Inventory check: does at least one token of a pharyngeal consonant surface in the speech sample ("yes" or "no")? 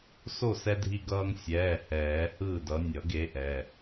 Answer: no